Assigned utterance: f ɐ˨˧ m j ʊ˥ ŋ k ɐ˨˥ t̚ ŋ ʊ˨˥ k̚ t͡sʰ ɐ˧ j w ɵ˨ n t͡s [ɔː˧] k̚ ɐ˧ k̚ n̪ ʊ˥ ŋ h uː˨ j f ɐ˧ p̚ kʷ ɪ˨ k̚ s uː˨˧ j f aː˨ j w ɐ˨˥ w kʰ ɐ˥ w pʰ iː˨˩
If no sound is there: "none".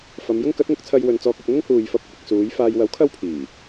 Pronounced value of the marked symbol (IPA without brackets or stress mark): ɔː˧